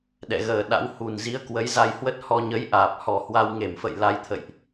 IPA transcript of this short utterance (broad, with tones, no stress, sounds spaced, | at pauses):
ɗ ɛ̰˧˨ ɣ əː˨˩ ɗ a̰˧˥ w h u˨˩ n z i˨˦ ə̯ k w ə˨˦ j z a˧ j h w ə˦˥ t̚ h ɔ˧ ɲ ə˨˦ j ʔ aː˨˩ p̚ h ɔ˨˩ h w a˧ w ŋ e˧˩ m f ə̰˧˨ j l a˧ j t̪ʰ ə̰˧˨ j ʔ